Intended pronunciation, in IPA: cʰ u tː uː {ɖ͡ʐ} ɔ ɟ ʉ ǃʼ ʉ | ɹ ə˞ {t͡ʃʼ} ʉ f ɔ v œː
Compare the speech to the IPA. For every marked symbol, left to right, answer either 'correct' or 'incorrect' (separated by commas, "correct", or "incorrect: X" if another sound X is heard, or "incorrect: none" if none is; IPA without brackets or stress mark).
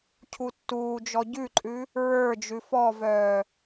incorrect: d͡ʒ, incorrect: d͡ʒ